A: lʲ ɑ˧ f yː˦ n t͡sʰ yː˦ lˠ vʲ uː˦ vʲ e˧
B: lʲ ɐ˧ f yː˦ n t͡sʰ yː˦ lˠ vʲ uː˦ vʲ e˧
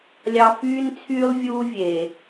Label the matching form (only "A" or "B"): A